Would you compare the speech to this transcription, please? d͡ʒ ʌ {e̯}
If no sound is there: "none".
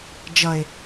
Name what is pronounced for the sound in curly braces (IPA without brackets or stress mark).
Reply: e̯